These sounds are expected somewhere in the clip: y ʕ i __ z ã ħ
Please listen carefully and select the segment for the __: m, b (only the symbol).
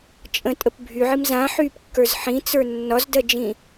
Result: m